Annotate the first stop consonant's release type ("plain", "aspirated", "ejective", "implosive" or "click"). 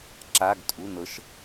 click